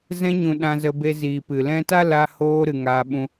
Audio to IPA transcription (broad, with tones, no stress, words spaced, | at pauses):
zɛ̃˧ɲũ˨ ɗã˧zə˧be˧ziː˨ pɨ˨ lɛ̃˧ ta˦ la˧hoː˧ɾɨ˨ ŋaː˧ ɓũ˧